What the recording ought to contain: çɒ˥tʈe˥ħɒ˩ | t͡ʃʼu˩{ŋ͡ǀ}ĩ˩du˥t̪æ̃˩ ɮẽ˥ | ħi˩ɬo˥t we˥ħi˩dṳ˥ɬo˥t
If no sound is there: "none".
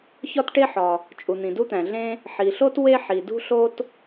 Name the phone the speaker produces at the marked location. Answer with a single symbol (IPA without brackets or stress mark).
n̪